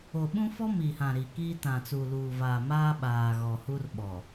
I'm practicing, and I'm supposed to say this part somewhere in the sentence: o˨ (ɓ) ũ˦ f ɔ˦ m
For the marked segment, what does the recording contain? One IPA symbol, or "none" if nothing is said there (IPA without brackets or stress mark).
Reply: ɓ